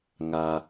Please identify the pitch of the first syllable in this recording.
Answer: low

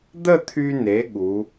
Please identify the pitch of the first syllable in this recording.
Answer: falling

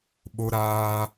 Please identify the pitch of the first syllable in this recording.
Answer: high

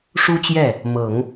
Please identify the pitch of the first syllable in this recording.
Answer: high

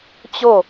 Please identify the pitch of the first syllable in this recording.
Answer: falling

